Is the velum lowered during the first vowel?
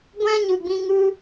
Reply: yes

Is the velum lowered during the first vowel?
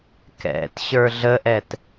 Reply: no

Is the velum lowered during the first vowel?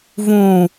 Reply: yes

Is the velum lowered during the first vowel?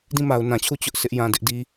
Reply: yes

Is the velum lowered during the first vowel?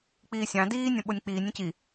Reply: no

